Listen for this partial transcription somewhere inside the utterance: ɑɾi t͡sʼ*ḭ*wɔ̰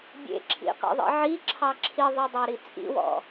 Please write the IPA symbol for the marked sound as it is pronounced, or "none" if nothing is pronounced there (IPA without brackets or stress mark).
ḭ